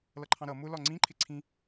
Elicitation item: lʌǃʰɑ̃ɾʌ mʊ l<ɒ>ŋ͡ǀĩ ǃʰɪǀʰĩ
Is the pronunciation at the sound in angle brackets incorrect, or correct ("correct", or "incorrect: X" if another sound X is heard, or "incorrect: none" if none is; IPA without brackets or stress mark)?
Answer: correct